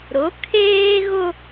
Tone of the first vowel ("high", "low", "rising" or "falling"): rising